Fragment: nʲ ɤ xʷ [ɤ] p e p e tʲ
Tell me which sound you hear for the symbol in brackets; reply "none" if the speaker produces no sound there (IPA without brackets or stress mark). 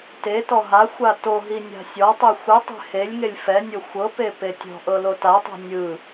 ɤ